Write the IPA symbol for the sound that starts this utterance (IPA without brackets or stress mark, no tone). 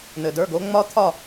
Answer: n̪